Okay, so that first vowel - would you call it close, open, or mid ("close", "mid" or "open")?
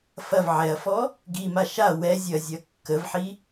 open